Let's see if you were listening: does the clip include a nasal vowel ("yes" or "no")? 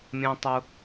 yes